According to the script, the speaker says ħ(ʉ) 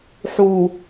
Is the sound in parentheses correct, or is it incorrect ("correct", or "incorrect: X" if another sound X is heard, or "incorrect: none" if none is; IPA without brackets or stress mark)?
incorrect: u